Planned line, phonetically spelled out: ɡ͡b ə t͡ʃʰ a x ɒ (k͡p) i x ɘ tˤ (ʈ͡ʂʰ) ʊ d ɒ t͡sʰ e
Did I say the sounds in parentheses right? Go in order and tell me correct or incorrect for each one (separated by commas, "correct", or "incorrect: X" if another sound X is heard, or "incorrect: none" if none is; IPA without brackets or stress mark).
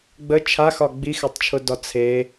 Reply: incorrect: ɡ͡b, incorrect: t͡ʃʰ